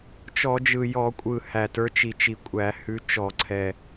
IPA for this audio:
t͡ʃ ɔ˧˩˧ d͡ʒ ɯ˨˩ j ɔ˧˩˧ kʷʼ ɯ˨˩ h æ˨˩ t ə˞˨˦ t͡ʃ i˨˩ t͡ʃ i˧˩˧ kʷʼ æ˧˩˧ h ʉ˨˦ t͡ʃ ɔ˧˩˧ ǀʰ ɛ˨˩

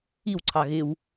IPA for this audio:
i w ǀʰ ɑ ɣ ɪ w

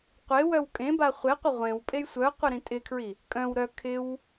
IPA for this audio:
qʷ e w œ w kʼ ẽ b a χʷ e qʷ ɪ ʁʷ ẽ w pʼ e j sʷ œ qʷ ɪ ɾ ĩ tʼ ɪ kʰ ɹ i | kʼ œ̃ w ɾ œ kʰ ɪ w

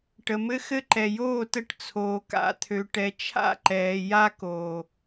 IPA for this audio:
ʈ ə˨ m ɘ˦ x ɘ˦ ǃ ɛ˨ j oː˦˨ t ə˦˨ ʈ t͡sʰ oː˨ k a̰˦˨ t̪ʰ ø˨ ʈ ɛ˨ t͡ʃʰ a̰˦˨ ǃ ɛː˨ j a˦ k oː˨

